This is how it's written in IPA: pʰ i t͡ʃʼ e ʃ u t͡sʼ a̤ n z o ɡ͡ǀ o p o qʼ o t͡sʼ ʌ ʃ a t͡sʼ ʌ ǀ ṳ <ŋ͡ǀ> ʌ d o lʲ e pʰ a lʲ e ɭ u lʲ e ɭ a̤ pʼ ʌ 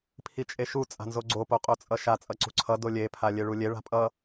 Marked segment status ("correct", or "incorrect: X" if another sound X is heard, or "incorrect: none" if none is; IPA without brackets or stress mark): incorrect: ǀʰ